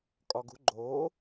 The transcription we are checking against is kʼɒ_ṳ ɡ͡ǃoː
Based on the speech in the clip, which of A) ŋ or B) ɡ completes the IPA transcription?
B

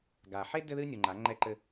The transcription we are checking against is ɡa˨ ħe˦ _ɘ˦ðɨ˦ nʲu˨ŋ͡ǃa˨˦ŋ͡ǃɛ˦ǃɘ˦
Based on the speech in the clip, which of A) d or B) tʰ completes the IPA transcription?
A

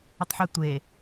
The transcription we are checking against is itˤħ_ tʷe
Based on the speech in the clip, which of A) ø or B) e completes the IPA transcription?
B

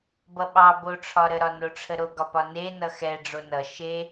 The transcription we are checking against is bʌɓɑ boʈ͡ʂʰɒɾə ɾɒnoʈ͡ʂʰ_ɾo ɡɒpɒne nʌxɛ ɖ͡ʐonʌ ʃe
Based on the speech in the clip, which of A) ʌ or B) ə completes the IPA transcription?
B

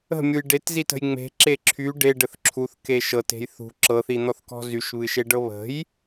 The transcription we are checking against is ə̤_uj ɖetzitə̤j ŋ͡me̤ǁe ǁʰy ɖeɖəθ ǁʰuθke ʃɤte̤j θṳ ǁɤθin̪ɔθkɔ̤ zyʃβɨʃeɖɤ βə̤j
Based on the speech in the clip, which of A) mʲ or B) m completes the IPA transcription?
A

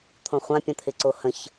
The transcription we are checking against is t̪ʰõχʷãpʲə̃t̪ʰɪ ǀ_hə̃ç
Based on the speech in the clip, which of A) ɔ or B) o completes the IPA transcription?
B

